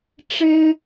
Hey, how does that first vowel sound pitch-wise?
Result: high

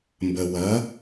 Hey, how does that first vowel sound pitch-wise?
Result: low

